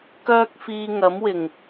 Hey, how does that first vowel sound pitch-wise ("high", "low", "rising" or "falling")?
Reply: high